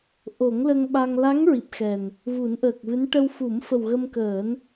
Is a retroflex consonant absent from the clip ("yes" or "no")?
no